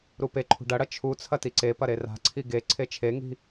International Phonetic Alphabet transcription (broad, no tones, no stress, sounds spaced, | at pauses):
ɾ u p e ǃʰ ṳ ɖ ɐ ɽ ɐ t͡ʃʰ u t͡sʰ ɐ t i ǀ e p ɐ ɾ e r a̤ ǀʰ i ɡ e ǀʰ e t͡ʃʰ e ŋ i̤